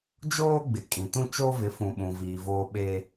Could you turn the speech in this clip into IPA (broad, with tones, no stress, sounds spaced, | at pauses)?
d͡ʒ oː˦ ɡ͡b ɪ˨ kʼ ĩ˨ t ũ˦ t͡ʃ o˦ v ɪ˨˦ f ũ˨ ɓ ũ˨ v iː˨ v oː˦ ɓ eː˦